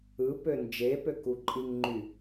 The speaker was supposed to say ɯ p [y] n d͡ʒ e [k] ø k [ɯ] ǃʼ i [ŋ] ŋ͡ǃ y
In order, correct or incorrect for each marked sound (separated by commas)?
incorrect, incorrect, incorrect, correct